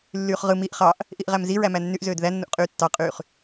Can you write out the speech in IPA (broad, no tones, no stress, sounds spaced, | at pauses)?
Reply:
lː yː χ ʁ ɯ m i ʔ χ ɑ ʔ | ʔ i ʔ ʁ æ m z i ɹ æ m æ nː y ʔ z øː d ð æ nː u ʔ qʼ yː tː ɑ qʼ yː χ